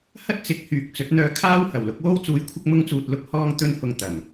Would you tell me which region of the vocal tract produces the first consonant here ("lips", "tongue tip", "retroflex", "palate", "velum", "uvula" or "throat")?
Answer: throat